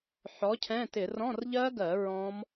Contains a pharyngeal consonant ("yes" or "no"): yes